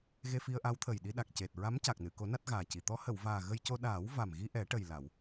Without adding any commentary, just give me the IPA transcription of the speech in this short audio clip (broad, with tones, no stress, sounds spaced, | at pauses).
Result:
ɣ e˧ f i˧ ə̯ ʔ a˧˥ w t̪ʰ ə˨˩ j ɗ i˧ ɗ a˨˩ k̚ c e˨˩ t̚ ɹ a˧˥ m c a˨˩ k̚ n ɨ˨˩˨ k o˨˩˦ n a˦˥ t̚ ɣ aː˨˩ c i˨˩ t̪ ɔ˧˥ h ə˨˩˨ w v aː˨˩ ɣ ə˧ j c o˧ ɗ aː˨˩˦ w v a˨˩ m ɣ i˧ ʔ ɛ˨˩˦ ʈ ə˨˩ j l a˨˩˨ w